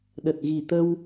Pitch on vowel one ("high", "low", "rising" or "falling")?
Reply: low